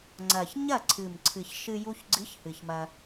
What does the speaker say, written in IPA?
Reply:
ŋ͡ǀ ɐ˨˩ ç ɲ ɐ˥˩ ǀʰ ɨ˨˩ m ǀʰ ɨ˨˩ ç ʃ ɨ˧ j u˧ ç ɡ͡ǀ ɨ˨˥ ç h ɨ˨˩ ç m ɐ˧

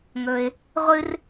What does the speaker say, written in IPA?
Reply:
ŋ ɵ˩ ɪ̯ | ʁʷ ɨ˥ r

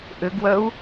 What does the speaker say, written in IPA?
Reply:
ʔ ʏ ɡ w œ u̯

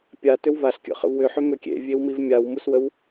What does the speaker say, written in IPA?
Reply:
pʲ a t ʏ w v a ɬ kʲ ə̰ χ ə̰ v w ʏ ħ ʏ m ʏ kʲ ḛ vʲ e w m i v mʲ a w m u s w ə w

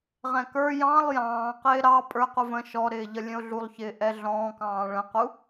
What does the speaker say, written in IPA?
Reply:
ʁ ɛ̃ k ə˞ j ɑ̃ lˠ j ɑ̃ː q ɪː ɾ ɑ pʼ ə˞ q u v ə̃ ʃ ɔ ɾ ɪː ʎ ʌ lʲ ə̃ ʊ̯ ɮ u lˠ ç ɪː ʔ ɛ ɮ ɔ̃ː k ɑ̃ː ɭ ə̃ q u

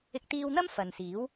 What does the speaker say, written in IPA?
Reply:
ɪ˧ k̚ t̪ iː˧ w n̪ ɐ˥ m f ɐ˨ n s iː˨˥ w

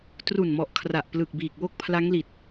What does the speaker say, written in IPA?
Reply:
t r u˨˩ n m ɔ˨˩ ʔ kʰ r a˨˩ ʔ p l ɯ˨˩ k̚ b iː˨˩ k̚ w o˥˩ k̚ pʰ l a˦˥ ŋ l i˨˩ t̚

